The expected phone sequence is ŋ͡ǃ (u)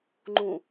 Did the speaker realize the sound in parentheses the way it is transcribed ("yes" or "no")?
no